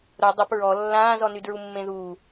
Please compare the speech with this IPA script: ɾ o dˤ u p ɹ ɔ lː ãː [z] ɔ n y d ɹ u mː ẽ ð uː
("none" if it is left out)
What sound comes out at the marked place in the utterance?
z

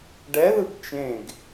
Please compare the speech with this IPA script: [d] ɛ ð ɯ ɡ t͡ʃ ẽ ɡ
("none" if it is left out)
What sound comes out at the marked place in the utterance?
ɖ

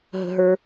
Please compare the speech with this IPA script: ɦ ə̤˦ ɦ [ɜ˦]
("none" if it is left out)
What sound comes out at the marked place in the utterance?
ə˞˦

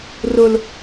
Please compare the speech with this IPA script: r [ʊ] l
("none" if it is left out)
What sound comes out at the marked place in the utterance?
ʊ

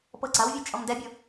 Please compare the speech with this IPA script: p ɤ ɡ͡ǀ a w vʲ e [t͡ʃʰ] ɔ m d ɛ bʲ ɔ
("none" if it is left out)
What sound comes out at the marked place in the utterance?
t͡ʃʼ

